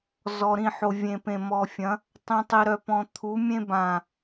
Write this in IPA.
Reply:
z ɔ˨ ɾ ĩ˦˨ ħ o˨ vʲ ẽ˨ p ẽ˨ m ɔ˨ fʲ ɐ̃˨˦ | tˤ ĩ˨ tˤ i˨ ɾ œ˨ p ɔ̃˨ t̪ʰ u˨˦ mʲ ẽ˦ b ã˨

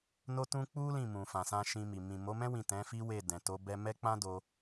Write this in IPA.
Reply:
n o˦ t ũ˦ k͡p u˦ l ĩ˦˨ m ũ˨ f ã˨ s ã˧ ʃ ĩ˧ m i˨ m ĩ˨ m o˨˦ m ɛ̃˦ w ĩ˦˨ t ɛ̃˨˦ f i˦ w e˦˨ d ɛ̃˨ t o˨˦ b ɛ˧ m ɛ˦ k͡p ã˦ d o˧

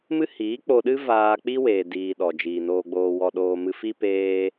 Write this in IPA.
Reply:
m ɨ˦ h iː˨˦ k͡p o˧ ɗ ɨ˦ v aː˧ k͡p i˦ w eː˧ d iː˧ ɗ ɔ˨ d͡ʒ iː˨ n oː˧ ɡ͡b oː˧ w ɔ˧ ɗ oː˧ m ɨ˧ f i˦ p eː˦

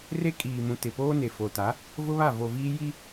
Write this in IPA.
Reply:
r e˦ kʼ iː˨ m ũ˨ t ɪ˨ p oː˦ n e˨ f o˨ t a˨˦ | v ʊ˦ β a˦˨ v o˨ v iː˦ j i˦

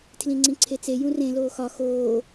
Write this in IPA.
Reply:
tʰ l ĩ ŋ͡ǀ ĩ ǀʰ e t͡s e j ũ r ẽ l oː x ɒ x oː

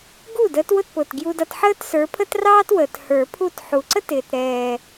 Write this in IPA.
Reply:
ɡ u˥˩ d əː˨˥ t w ʊ˥˩ t p ʊ˨˩ t ɡ j u˧ d ʌ˧ t ħ əː˥ t s ə˞˨˥ pʰ ə˥ t r ɑː˥ t w əː˨˩ t h ə˞˨˩˦ pʰ u˥˩ t ħ u˨˩ ǀ ə˥ t ɪː˨˩ t ɾ ɛː˨˩

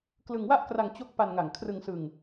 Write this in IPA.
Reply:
k l ɯ˧ ŋ w a˥˩ ʔ k r a˧ ŋ t͡ɕ o˦˥ k̚ p a˧ n ŋ a˨˩ ŋ kʰ r ɯ˧ ŋ s ɯ˧ ŋ

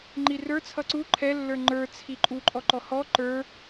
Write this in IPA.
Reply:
ŋ͡ǃ i r ə˞ t͡sʰ ʌ ǀ u ǃʰ ɛ lː ə˞ ŋ͡ǃ ə˞ t͡sʰ i ǃʼ u ǃʼ ɔ ǃ ɔ h ɔ ǃ ə˞

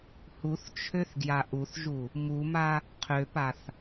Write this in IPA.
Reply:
h u θ t͡ʃʰ ø θ ɡ j a ʔ u θ ʒ u | m u m a | qʰ ø p a θ

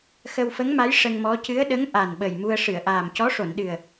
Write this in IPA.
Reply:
x ə˧ w f ə˧˥ ŋ m a˧˥ j ʂ ə˧ ŋ m ɔ˧˥ c ɨ˧˥ ə̯ ɗ ə˧˥ ŋ ʔ a˨˩ n ɓ ə˨˩ j m u˧ ə̯ ʂ ɨ˨˩˨ ə̯ ʔ aː˨˩ m c ɔ˧˥ ʂ o˨˩˨ n ɗ ɨ˨˩ ə̯

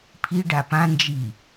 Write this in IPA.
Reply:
pʰ i ɖ a p ã n d͡ʒ i

